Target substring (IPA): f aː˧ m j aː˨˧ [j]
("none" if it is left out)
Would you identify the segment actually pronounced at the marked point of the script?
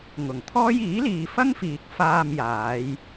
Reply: j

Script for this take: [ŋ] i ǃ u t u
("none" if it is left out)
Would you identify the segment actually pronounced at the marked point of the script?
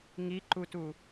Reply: ŋ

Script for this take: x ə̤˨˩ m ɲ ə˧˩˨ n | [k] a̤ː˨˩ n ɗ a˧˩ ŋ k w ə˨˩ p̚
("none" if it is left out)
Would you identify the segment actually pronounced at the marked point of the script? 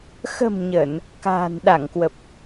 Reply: k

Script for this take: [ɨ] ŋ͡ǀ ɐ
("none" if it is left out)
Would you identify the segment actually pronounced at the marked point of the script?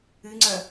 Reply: ɨ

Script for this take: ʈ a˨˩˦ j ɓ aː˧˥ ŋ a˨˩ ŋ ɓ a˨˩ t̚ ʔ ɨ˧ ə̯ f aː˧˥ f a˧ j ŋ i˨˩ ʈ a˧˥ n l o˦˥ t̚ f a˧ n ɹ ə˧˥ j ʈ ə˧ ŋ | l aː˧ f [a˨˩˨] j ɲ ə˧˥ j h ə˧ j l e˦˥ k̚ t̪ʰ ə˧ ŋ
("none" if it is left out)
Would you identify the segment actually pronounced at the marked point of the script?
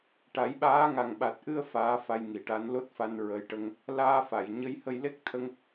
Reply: a˨˩˨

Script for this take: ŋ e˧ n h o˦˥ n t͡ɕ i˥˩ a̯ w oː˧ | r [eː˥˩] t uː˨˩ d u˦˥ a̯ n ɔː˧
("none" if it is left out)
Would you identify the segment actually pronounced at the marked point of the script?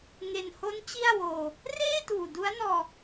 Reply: eː˥˩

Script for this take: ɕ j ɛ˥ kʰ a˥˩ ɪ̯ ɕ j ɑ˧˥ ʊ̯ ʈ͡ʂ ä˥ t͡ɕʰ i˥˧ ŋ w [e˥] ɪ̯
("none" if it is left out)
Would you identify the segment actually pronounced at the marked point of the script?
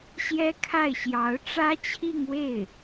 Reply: e˥˩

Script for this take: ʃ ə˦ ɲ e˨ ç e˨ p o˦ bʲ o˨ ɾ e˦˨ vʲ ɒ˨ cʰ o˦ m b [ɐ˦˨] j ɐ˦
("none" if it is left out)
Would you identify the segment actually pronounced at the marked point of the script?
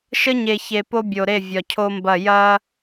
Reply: ɐ˦˨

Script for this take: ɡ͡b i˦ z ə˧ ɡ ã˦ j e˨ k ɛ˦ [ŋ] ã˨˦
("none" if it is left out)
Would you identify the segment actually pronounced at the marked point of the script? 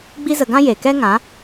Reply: ŋ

